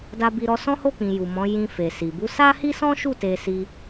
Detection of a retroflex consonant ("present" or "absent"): absent